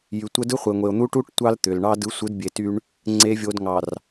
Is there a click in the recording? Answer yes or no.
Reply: yes